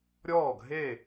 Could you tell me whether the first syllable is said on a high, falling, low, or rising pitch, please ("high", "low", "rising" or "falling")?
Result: falling